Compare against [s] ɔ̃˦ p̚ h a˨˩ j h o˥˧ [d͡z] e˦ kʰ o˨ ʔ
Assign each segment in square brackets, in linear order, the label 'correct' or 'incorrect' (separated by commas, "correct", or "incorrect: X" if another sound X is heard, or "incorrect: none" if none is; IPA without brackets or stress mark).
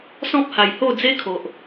correct, correct